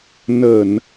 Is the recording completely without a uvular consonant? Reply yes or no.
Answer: yes